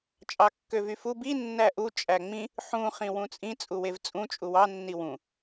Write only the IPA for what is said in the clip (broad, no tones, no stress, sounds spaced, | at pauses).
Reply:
t͡ʃʼ ɑ kː ø v y f u b i nː æ ʔ u t͡ʃʼ æ ŋ͡m ĩ | ħ ũ χ ĩ w ũ t͡sʼ ĩ t͡sʼ u w e v t͡sʼ ũ t͡ʃʼ u w ɑ nː i w ũ